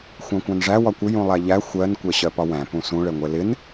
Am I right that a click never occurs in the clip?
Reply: yes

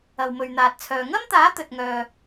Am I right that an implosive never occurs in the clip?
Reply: yes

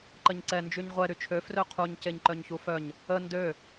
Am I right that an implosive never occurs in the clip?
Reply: yes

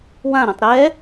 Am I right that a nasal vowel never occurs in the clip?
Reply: no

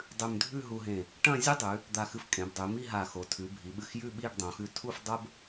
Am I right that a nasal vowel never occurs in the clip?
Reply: no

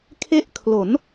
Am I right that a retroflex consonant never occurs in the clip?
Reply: yes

